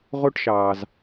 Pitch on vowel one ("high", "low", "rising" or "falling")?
falling